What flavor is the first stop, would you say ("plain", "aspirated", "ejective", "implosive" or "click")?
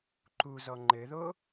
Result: click